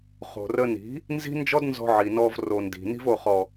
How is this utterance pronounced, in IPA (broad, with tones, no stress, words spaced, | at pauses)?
χo̤˨rə˧ni̤˨˦ | nzi̤˦nd͡ʒɔ˦dnzɔ̤˧ ʕi˨nɔ˧vro˨ndi̤˨ ni̤˧vo˨χɔ˨